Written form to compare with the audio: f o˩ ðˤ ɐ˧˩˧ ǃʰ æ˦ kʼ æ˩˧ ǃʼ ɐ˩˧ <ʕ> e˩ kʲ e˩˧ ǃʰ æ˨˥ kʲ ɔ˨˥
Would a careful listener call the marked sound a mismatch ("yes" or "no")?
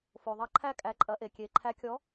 yes